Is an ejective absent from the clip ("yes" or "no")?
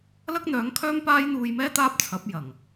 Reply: yes